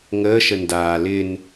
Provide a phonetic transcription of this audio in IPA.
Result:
ŋ əː ʃ ə n d aː l ɪ n

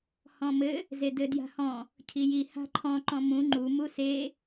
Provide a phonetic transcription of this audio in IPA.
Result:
h ɔ̃ m ɘ | z e d ɘ d j a̤ h ɔ̃ | cʰ i j i h a̤ ǃʰ ɔ̃ ǃ ɔ̃ m ũ ŋ͡ǃ u m u s e

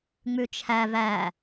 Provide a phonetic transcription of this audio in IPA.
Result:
ŋ͡m ʉ t͡ʃʰ æ v æ

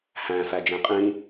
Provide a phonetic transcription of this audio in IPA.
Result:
h æ̃ f æ d͡ʒ ẽ qʼ ĩ

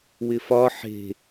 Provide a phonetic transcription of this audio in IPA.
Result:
w ɪ f ɒ ħ e̤

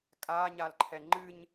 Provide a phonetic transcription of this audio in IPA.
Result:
kʼ aː ɲ a l ǃʰ ɛ ŋ͡ǃ ɨ ɲ

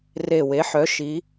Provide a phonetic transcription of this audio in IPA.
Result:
r e˨˩ w e˩˧ ħ œ˩˧ ʃ i˩˧

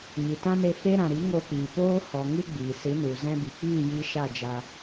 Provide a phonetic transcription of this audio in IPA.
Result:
ɲ i˨ t ã˦ n e˧ f e˦ ɾ ã˨ ɾ i˨˦ ŋ o˧ k͡p iː˨ p oː˦ h ɔ˨ ŋ ɨ˦ ɡ͡b iː˨ s ɨ˨˦ n u˨ z ɛ̃˧ b i˨ k͡p iː˦˨ j i˧ ʃ a˦˨ d͡ʒ a˧

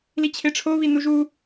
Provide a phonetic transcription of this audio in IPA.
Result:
l i t͡ɕʰ e ʈ͡ʂʰ o β i n u ʒ u

